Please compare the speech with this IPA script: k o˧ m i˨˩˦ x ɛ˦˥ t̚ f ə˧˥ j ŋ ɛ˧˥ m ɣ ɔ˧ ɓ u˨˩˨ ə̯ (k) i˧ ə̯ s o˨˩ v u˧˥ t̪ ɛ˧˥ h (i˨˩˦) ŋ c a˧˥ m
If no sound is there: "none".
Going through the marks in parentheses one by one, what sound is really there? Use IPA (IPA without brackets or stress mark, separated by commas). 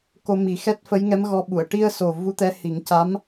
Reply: ʈ, i˨˩˦